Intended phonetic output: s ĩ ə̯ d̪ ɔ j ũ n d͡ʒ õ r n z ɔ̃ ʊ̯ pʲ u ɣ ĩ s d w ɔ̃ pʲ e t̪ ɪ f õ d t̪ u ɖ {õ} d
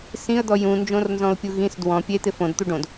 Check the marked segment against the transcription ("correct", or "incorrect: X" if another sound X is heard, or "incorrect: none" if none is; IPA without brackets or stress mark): correct